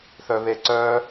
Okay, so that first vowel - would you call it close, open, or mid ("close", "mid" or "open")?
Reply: mid